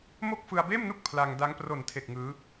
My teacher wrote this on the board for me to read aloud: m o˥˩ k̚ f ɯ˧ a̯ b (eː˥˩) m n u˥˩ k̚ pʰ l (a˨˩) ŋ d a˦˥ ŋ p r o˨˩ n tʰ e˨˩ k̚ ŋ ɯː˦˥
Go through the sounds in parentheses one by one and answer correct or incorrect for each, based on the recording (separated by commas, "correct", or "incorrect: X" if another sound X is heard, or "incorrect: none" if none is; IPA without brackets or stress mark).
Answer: correct, incorrect: a˧